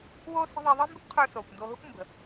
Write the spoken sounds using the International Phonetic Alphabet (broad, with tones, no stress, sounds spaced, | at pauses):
w oː˥ s ə̤˥ ðˤ i˧ ðˤ əː˥ m b y˥ kʷ qʰ ə˞˧ s oː˩ kʷ n d oː˧ ɦ u˥ kʷ m b ə̤˩